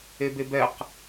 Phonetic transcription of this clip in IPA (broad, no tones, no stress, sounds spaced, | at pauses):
e b e b ɛ q